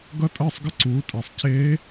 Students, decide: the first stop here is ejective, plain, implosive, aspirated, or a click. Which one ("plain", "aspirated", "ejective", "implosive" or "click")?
plain